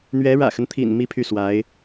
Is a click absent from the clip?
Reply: yes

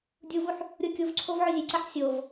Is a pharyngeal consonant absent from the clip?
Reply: no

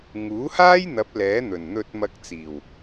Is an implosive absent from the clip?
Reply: yes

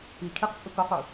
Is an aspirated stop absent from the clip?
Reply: no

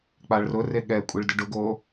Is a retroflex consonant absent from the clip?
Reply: no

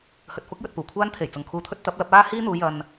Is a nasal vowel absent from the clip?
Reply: yes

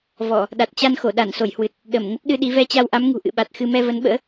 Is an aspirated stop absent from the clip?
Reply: yes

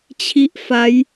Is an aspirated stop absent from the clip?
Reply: no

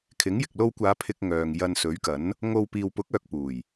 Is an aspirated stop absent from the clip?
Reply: no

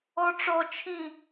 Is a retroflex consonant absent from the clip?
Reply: no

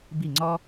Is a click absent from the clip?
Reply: no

